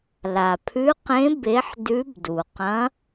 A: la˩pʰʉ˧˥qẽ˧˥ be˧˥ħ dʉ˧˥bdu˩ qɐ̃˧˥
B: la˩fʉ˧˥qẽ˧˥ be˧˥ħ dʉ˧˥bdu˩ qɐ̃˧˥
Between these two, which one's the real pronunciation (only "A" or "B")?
A